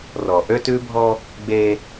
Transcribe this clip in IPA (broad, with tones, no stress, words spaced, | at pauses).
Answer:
rɔ˨ ʔø˦tʉ˦bʱɔ˦ | ɡ͡be˦